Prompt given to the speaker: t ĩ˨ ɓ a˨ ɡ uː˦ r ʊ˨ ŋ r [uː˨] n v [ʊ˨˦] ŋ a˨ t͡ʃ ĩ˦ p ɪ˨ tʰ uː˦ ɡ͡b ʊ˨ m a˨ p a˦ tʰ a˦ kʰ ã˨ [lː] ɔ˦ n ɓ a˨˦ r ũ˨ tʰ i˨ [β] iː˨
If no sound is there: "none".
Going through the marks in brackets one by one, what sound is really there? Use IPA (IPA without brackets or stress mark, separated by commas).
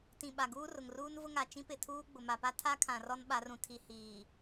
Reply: uː˦, ʊ˦, r, h